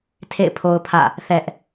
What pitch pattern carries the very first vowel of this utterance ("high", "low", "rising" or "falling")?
falling